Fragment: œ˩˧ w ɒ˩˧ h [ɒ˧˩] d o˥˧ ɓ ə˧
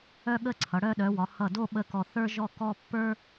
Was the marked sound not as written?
yes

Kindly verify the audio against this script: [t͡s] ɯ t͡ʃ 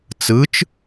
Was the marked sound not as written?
no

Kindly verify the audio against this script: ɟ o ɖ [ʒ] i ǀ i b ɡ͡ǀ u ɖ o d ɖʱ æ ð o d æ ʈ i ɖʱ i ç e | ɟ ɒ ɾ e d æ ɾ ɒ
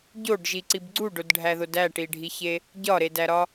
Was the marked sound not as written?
no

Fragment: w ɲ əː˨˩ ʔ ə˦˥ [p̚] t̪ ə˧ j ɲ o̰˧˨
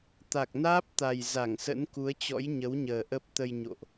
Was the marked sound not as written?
no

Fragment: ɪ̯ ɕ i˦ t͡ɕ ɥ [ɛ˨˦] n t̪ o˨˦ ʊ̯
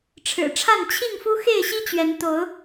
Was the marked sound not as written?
no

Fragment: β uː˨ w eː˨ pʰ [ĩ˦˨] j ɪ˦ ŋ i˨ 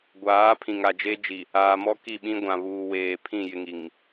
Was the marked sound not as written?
no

